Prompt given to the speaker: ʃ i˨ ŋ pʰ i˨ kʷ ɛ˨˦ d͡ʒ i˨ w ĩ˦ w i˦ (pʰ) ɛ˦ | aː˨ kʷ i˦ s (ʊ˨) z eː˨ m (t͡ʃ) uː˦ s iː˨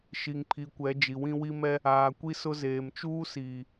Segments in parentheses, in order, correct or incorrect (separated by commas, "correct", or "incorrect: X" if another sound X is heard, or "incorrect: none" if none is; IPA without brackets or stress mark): incorrect: m, incorrect: ʊ˦, correct